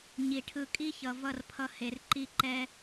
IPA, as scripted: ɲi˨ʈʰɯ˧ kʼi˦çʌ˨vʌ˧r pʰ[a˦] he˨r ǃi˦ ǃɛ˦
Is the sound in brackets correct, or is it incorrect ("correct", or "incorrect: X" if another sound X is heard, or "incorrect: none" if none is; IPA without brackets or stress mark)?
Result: incorrect: ʌ˦